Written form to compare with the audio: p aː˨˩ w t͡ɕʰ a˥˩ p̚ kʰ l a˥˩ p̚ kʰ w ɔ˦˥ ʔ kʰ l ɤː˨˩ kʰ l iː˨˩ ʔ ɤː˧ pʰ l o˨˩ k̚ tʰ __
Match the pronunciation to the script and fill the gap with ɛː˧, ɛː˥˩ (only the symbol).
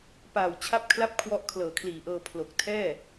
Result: ɛː˥˩